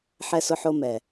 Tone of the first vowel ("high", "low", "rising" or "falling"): high